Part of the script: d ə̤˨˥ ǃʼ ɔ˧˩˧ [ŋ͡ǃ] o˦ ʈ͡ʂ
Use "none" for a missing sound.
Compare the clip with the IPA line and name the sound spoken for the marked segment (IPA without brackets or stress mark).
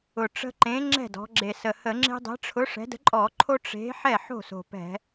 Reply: ǃʰ